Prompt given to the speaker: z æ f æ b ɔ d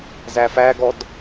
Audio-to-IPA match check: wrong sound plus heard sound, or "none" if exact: b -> ɡ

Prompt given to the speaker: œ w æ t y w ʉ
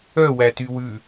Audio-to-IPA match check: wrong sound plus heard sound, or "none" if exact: none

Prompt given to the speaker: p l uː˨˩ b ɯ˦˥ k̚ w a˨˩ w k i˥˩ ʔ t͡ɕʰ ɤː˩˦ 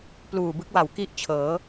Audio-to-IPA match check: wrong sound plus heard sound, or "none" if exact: none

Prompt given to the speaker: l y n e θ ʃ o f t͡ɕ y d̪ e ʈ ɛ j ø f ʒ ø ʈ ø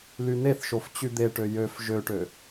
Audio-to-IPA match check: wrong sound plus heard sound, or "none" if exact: ɛ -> ø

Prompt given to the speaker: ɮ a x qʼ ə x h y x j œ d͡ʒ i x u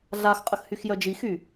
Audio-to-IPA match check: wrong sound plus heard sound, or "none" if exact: u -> y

